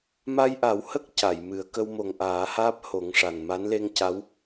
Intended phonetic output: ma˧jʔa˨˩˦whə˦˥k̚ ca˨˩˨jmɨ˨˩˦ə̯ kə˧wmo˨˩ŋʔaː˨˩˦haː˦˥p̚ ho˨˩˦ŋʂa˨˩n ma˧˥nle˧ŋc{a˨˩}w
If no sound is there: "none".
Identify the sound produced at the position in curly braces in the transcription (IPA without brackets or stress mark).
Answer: a˧˥